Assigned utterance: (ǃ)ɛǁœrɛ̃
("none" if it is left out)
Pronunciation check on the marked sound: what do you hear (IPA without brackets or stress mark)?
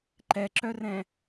ǃ